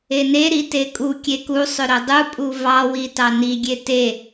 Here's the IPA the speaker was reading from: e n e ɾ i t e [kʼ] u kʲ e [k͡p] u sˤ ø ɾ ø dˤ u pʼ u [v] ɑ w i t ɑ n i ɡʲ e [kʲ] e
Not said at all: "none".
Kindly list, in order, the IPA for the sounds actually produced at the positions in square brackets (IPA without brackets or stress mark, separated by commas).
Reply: kʼ, k, v, t